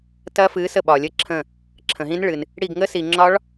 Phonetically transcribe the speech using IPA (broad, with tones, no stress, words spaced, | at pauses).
tɐ˦˥fɨ˨˥sə˦˨ ɓɒ˨lʲə˦˨ǁʰə̃˦˨ | ǁʰə̃˨ɦĩ˦˥nɭɨ˨n | ɽi˦˨ɡŋə˦˥si˨ ŋ͡ǁɒ˦˥ɭ